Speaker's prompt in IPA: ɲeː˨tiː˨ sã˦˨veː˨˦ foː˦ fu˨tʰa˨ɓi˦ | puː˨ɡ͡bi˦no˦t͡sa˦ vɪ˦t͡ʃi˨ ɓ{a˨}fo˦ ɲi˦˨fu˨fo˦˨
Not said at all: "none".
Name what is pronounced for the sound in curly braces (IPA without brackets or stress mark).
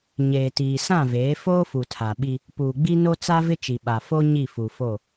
a˨